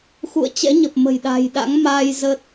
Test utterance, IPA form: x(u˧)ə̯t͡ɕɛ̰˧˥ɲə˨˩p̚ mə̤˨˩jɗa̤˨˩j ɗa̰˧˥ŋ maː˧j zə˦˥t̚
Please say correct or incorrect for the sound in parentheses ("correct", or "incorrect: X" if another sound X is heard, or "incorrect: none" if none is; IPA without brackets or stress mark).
incorrect: ṵ˧˨